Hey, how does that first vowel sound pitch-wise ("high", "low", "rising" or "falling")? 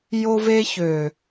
high